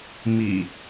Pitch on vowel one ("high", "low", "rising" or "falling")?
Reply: low